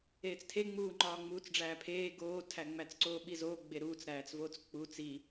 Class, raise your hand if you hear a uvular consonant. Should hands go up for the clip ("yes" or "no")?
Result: no